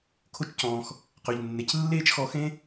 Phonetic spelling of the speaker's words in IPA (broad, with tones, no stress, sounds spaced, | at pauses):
kʰ o˦ t͡ʃ c ɔ̃ː˧ x | q œ˨ ʎ nː e˨ c lː eː˦ t͡ʃ x ɔ˧ x ẽ˦